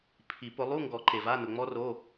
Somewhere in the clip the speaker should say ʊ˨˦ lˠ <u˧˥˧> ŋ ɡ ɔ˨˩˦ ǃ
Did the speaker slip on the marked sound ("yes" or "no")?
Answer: no